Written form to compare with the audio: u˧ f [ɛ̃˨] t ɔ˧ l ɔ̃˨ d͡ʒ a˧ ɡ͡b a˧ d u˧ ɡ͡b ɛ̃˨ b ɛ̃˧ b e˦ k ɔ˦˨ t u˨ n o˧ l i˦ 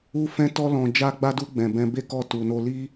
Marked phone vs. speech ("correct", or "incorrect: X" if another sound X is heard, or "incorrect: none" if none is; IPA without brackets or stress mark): incorrect: ɛ̃˧